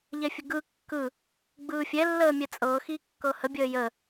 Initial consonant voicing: voiced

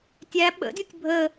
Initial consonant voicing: voiceless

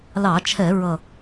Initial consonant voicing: voiced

